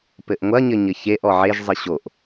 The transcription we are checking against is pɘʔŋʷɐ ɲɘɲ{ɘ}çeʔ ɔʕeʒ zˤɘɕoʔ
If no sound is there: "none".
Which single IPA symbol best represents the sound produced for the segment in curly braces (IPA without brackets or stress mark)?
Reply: ɘ